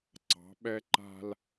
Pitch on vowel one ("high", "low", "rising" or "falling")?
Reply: rising